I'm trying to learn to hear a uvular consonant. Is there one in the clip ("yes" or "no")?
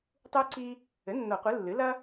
yes